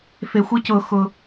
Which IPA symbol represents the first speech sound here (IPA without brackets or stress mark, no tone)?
f